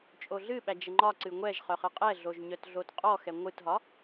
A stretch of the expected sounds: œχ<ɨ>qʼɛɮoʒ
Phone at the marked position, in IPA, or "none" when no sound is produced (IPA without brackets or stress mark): ɨ